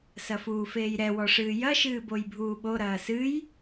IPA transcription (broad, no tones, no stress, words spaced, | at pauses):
sɐfuːfeːjɾɛ wɔʂɨːjɐ ʃɨːbojbʱuːɓo ɾɐːsɨj